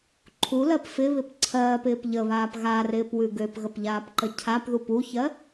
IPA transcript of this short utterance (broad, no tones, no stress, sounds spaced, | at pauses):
ǃʰ u l ɜ p f ɪ β ɪ p ǀʰ ɜː p ɪː p ʎ ə β aː p ɣ a r ɪː p w ʉ ɡ ø p ɣ ə p ʎ aː p ǃ ə cʰ a p ð u p u ç ɜ